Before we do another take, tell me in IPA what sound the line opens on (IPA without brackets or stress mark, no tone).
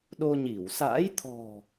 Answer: ɗ